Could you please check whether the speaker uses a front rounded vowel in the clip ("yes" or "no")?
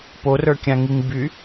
yes